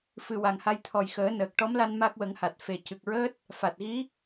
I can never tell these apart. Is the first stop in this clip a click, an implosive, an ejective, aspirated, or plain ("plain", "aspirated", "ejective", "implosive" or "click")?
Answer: aspirated